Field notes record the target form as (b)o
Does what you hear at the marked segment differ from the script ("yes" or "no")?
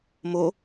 yes